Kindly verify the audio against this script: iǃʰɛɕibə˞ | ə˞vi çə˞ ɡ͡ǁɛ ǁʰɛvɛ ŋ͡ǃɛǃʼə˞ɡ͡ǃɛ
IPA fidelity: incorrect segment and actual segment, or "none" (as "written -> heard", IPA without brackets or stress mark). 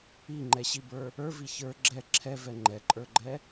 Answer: ǃʰ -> ŋ͡ǃ